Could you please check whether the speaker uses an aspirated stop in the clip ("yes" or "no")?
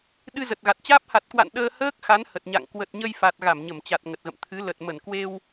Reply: yes